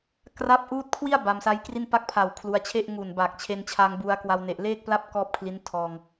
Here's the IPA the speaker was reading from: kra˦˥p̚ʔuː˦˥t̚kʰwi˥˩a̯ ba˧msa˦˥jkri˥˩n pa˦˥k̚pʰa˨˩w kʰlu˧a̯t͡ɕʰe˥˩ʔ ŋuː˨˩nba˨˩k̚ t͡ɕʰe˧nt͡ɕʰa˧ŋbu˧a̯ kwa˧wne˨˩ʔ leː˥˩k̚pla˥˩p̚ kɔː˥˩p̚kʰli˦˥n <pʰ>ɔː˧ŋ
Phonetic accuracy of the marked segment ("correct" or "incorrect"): incorrect